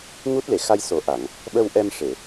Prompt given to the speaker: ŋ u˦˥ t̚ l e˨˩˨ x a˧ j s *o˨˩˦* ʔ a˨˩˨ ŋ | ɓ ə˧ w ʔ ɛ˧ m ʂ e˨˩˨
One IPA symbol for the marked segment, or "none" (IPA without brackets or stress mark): o˨˩˦